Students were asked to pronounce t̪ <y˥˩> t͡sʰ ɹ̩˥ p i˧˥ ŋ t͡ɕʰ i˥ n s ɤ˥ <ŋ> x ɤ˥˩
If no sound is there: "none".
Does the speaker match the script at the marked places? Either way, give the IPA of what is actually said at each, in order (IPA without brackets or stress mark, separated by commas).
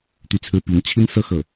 y˥˩, none